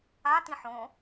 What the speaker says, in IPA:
a t ĩ ħ õ

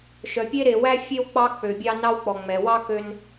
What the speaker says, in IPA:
ʃ œ˨ pʲ e˥ ɾ e˨ w æ˥ fʲ e˥ w k͡p ɑ˦ k͡p ø˨ bʲ ɑ˦ n ɑ˦ w k͡p ɔ˨ ŋ͡m ɛ˨ w ɑ˥ k ø˦ n

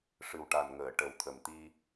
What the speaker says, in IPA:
ʂ ɨ˨˩ w ʈ a˨˩ n ŋ əː˨˩˨ ʈ ə˨˩ w t̪ʰ ə˨˩ m t̪ i˧

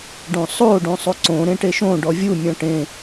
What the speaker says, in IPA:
ɖ õ sˤ o ɖ õ sˤ o ǀ õ ɾ ẽ ʈ e ʃ õ ɖ ɔ vʲ u mʲ ɔ̃ ʈ ẽ

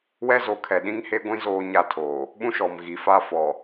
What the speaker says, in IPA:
w ɛ˦ z o˨˦ kʰ ɛ˨ ɗ ĩ˦ ŋ h e˦ ɡʷ ĩ˦ z oː˦ ɲ a˦˨ tʰ oː˨ | ɓ ũ˦ ʃ ɔ˨ m ɣ i˨ f a˦ f ɔ˨

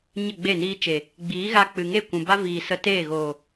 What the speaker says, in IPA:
ɲ ə˦˨ ɡ͡b e˦˨ n iː˧ t͡ʃ e˨ | ɡ͡b iː˨˦ ɣ a˧ k͡p ɨ˨ ŋ e˦˨ kʷ ũ˨ b a˦ v iː˨ s ə˧ t eː˦˨ ɣ oː˨

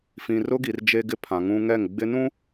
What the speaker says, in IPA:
f ĩ˨ r ʊ˦ ɡ i˨ r d͡ʒ e˦ ɡ ɪ˦ pʰ ã˨ ŋ ũ˦ ŋ ɛ˦˨ ŋ ɡ͡b ɪ˦ n ũ˦

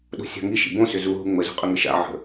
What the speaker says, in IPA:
ɗ o̤ sʲ a̤ ŋ i ʃ ḭ b õ s ʏ z u ɦ u ŋ͡m ə z o̤ qʼ ə ŋ ə ʃ a̰ ʕ ə̤

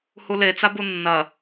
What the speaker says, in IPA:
h u l e t͡s a b u nː ɐ

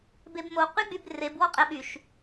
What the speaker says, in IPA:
b e b m o q y ɡ͡b y b r e b w ɔ qʼ ɛ ɓ y ʃ

